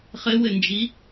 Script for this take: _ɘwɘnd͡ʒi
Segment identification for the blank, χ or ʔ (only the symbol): χ